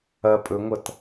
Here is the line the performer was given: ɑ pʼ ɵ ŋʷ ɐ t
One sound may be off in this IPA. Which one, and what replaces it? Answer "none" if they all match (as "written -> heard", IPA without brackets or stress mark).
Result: ɑ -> ɐ